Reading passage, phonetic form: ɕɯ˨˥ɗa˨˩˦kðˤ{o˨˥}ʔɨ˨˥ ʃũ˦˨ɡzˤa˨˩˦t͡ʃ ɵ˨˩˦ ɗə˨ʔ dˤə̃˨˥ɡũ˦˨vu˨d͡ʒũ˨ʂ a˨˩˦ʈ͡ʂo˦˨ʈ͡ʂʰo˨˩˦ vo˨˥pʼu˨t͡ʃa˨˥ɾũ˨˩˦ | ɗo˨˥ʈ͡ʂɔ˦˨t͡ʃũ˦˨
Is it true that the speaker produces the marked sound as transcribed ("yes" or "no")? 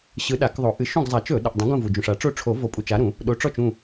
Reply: no